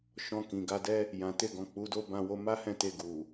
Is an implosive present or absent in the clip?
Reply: absent